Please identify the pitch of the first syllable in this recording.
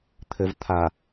low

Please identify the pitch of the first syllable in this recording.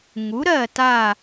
rising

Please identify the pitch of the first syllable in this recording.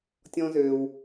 low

